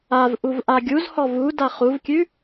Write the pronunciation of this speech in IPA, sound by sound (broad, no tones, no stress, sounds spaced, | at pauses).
a v ʔ u v ʔ a ɡʲ u z h ɔ v u d a χ u v kʲ ʉ